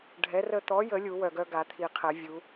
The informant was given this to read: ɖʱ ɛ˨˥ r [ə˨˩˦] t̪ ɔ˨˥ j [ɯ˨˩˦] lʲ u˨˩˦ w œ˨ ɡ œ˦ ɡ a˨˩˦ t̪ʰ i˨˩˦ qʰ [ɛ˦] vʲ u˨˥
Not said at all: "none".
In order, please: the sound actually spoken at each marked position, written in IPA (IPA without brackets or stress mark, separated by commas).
ə˦, ə˨˩˦, ɛ˨˩˦